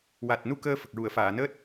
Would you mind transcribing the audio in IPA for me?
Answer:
wa˨˩t̚nu˧ kəː˧ fə˨˩k̚ɹu˨˩˨ə̯faː˨˩˨nəː˦˥t̚

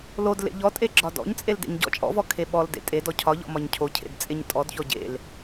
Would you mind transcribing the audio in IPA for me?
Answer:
lodlḛ ʎɔtʼe ɡ͡ǁɒdɔ̰ɲt͡sʼel dḛɲɟɔ̰t͡ʃʼɔ̰vɔ kʰeɓɔldḛ tʼe dɔcʰɒʎɔ̰ mɒɲcʰocʰḛd t͡sʼeɲtʼɔdçɔ ɟḛl

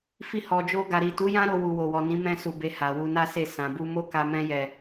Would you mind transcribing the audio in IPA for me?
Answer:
fi˧hɔ˨d͡ʒo˧ ɡa˨ɾi˨tu˨˦jã˦ ɾo˧wu˨ wo˨wɔ˨nĩ˨˦ mɛ̃˦su˧be˧ ha˨wu˧na˦se˦˨ sã˨bu˧ mo˦ka˧ mɛ̃˧jɛ˨

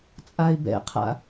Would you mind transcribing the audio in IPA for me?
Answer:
t͡sʼaɪ̯bɛ̰qʰa̰

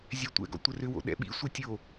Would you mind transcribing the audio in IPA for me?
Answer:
zʲɛtʷɛ̰ɡɔ̰ tʷərʏwo̰ ɗɛ̰ɓḭsʷə tʲo

